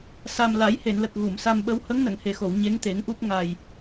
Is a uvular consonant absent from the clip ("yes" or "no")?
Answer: yes